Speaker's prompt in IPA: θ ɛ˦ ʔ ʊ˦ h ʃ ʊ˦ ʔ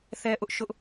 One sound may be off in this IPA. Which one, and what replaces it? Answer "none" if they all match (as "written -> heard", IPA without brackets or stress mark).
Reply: h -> ʔ